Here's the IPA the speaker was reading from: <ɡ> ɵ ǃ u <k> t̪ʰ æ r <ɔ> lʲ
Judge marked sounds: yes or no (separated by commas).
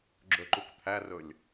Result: no, yes, no